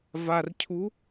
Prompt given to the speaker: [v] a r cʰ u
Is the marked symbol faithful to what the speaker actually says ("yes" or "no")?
yes